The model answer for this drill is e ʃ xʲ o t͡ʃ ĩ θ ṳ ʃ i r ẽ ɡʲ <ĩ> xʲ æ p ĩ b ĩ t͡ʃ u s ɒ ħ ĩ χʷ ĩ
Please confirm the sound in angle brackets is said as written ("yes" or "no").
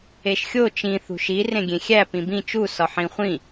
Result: no